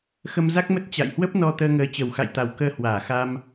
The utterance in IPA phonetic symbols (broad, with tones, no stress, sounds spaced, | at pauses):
x ə˧ m z a˦˥ k̚ m ə˦˥ t̚ t͡ɕ a̰˧˨ j h w ə˦˥ p̚ n ɔ˧ t̪ əː˧ ŋ əː˨˦ t͡ɕ ə˨˩ w x a̰˧˨ j t̪ a˨˩ w k əː˧ h w aː˧˩ x a˧ m